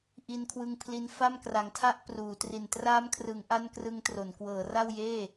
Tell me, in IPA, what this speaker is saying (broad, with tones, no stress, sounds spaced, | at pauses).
ʔ i˧ n kʰ w ɯ˧ ŋ pʰ l i˧ n f a˥˩ m k r a˨˩ ŋ tʰ a˥˩ ʔ p r uː˩˦ t r i˨˩ n t r aː˦˥ m kʰ r ɯ˩˦ ŋ ʔ a˥˩ n k r ɯ˦˥ ŋ t r o˩˦ n k w ɤː˩˦ r a˥˩ w j eː˥˩